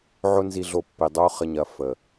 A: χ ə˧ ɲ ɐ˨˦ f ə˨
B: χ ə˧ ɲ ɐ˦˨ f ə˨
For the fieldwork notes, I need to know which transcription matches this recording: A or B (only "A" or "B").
A